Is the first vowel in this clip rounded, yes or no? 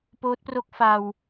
yes